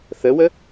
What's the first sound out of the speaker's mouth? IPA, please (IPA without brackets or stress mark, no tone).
θ